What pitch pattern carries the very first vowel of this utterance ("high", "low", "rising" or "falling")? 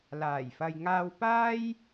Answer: low